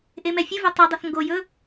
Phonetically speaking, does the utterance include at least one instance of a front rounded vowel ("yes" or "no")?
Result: no